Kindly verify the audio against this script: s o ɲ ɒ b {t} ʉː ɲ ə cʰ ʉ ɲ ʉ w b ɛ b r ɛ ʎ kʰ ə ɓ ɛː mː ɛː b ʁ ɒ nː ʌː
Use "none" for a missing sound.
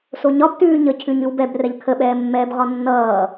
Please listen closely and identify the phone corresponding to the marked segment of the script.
t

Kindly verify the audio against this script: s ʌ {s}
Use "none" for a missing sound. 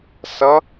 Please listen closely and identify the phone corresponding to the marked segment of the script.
none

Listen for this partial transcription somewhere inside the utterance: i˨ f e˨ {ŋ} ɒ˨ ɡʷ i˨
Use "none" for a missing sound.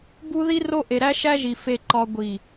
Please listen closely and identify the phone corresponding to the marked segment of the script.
ǃ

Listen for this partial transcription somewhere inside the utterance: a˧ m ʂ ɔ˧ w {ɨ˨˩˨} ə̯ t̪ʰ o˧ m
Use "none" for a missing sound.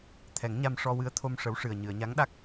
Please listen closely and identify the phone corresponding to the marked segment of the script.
ɨ˧˥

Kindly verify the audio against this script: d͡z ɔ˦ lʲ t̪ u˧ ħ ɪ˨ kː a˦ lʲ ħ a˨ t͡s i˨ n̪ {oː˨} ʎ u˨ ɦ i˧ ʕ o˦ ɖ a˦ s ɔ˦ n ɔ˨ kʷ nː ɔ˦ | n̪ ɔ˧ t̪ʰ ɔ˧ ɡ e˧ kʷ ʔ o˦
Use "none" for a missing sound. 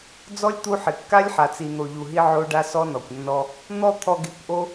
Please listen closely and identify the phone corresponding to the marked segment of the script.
o˨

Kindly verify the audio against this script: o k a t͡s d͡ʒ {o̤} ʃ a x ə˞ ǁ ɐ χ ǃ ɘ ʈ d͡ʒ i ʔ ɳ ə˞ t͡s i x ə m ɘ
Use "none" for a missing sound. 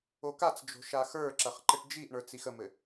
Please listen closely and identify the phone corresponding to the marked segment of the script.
o̤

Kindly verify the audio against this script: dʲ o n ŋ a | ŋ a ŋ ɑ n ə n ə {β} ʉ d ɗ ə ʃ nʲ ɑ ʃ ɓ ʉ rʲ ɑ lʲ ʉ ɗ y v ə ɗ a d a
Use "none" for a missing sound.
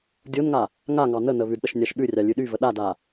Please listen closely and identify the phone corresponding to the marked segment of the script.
β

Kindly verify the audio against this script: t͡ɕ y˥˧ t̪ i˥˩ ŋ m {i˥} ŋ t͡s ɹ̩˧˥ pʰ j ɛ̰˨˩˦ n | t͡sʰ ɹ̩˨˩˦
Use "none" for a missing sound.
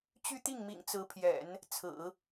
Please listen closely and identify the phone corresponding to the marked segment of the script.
ḭ˨˩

